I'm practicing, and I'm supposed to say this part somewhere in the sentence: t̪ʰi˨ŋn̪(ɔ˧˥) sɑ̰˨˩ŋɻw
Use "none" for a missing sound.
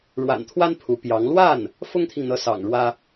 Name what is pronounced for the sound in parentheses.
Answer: ɤ˧˥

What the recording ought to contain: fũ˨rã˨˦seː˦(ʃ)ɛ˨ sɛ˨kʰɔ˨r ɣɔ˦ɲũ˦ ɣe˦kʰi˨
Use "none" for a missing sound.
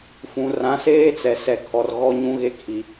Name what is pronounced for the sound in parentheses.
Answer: t͡s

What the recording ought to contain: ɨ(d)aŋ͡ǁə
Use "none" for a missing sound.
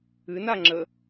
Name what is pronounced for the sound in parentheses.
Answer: n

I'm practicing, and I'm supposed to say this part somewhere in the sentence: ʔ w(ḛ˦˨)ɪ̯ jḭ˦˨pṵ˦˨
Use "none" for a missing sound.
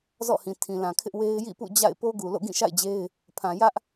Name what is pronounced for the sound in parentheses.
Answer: e˦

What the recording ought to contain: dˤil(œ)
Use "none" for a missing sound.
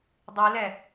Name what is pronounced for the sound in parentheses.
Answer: ɛ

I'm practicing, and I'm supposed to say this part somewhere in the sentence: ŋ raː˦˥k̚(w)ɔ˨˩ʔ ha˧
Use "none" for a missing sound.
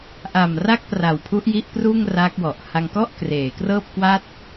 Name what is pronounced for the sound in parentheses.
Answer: w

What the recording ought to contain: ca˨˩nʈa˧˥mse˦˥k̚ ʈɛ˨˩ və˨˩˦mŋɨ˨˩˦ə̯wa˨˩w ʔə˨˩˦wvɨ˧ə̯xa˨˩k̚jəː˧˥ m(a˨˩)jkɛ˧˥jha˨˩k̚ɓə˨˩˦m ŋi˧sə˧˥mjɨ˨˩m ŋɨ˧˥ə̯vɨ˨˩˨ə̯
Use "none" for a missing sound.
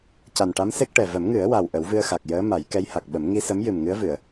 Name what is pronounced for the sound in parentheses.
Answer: a˨˩˦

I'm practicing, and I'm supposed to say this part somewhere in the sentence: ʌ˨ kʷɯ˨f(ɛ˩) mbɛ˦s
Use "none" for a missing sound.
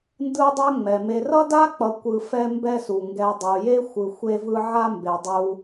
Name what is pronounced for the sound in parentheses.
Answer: ɛ˦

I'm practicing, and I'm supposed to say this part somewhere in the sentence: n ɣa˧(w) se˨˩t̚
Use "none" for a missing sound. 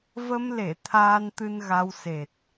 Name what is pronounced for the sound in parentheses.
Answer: w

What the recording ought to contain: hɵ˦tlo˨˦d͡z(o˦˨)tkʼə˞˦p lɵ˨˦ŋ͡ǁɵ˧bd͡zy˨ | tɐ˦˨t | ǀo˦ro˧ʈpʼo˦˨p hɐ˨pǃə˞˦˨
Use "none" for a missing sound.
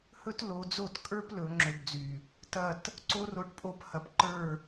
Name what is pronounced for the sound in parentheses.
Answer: o˦˨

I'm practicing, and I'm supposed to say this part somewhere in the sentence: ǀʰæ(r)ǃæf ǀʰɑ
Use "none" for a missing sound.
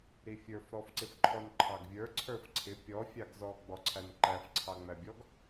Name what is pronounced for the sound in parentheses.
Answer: n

